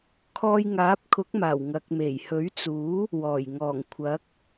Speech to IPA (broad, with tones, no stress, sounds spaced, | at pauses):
kʰ ɔː˧ j ŋ aː˨˥ p̚ kʰ ʊ˨˥ k̚ m aː˨˩ w ŋ ɐ˨ k̚ m e˨˩ j h ɵ˨˥ ɥ t͡s uː˨˥ | w ɔː˨˩ j ŋ ɔː˨˩ ŋ kʷʰ ɐ˨˥ k̚